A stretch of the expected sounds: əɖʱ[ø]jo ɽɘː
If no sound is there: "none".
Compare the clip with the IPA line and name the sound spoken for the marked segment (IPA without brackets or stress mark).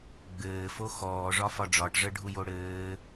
u